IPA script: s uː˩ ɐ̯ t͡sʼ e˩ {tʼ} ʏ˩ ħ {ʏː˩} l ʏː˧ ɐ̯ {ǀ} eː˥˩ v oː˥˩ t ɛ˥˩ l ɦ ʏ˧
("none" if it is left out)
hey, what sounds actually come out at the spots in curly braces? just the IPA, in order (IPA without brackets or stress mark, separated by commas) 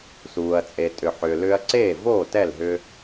tʼ, ʏː˩, ǀ